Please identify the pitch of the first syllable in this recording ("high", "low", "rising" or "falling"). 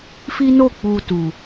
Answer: high